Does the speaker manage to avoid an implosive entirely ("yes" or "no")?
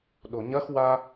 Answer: no